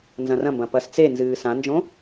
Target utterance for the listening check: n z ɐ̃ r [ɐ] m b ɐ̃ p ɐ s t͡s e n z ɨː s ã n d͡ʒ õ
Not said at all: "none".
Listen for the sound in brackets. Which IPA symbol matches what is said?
ɐ̃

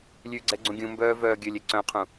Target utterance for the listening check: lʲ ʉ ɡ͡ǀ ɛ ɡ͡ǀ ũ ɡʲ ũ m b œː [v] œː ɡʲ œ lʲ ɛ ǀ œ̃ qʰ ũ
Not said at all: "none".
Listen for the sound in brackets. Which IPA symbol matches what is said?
v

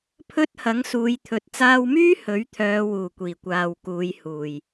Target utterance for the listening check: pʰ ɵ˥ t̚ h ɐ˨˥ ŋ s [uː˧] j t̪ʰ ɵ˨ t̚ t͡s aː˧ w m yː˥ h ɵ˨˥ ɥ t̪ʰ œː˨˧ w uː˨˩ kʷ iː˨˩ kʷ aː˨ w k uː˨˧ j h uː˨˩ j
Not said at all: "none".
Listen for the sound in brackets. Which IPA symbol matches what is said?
uː˨˧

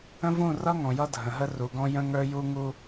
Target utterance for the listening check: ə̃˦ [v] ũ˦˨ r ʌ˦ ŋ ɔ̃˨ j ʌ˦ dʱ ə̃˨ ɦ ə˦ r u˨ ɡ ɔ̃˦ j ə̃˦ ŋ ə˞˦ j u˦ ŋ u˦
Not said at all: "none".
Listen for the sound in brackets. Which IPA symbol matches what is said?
v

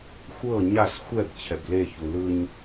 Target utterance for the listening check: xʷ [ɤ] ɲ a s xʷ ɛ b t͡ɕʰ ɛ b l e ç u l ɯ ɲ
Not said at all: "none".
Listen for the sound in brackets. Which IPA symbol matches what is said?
ɤ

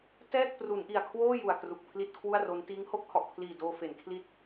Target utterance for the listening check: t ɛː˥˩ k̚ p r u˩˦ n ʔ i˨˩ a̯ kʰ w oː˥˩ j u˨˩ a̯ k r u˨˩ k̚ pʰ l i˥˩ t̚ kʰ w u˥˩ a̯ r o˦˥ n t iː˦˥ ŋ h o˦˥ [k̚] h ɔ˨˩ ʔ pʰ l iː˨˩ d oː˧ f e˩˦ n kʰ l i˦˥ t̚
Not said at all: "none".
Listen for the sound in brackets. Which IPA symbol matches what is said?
k̚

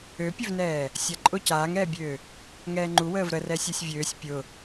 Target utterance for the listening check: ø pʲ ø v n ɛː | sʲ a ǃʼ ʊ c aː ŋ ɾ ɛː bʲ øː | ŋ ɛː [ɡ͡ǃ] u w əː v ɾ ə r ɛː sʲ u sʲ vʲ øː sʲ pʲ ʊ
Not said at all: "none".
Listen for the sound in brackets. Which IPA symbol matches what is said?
ŋ͡ǃ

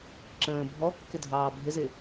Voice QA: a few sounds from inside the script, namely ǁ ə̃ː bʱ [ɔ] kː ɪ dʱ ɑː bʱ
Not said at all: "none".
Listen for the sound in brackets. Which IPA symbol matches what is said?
ɔ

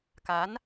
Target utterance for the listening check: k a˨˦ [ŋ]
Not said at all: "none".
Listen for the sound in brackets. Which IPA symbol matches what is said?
n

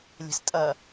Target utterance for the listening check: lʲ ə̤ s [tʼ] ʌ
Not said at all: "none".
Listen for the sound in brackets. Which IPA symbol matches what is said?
tʼ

